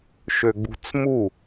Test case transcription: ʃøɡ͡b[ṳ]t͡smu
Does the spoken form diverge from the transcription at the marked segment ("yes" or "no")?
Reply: no